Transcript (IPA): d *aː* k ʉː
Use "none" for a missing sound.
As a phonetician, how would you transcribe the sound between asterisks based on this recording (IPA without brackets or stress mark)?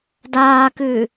aː